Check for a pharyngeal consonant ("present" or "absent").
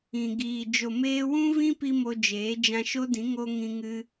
absent